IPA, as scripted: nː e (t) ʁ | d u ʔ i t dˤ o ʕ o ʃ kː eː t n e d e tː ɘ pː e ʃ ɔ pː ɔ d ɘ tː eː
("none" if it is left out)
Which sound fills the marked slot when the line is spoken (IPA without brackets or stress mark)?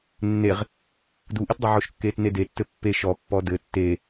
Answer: none